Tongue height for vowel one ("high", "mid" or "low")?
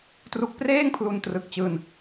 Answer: high